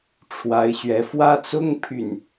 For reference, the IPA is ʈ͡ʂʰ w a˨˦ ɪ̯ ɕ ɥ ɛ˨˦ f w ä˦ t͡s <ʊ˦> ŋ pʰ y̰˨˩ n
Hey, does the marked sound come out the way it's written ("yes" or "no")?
yes